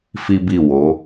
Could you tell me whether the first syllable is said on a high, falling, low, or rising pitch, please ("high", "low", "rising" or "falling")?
high